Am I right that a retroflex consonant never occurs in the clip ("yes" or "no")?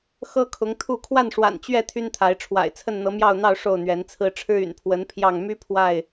no